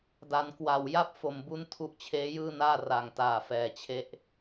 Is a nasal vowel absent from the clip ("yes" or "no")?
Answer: yes